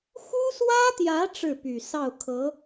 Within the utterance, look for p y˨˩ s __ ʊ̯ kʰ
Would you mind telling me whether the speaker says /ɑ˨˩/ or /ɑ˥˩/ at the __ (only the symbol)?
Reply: ɑ˥˩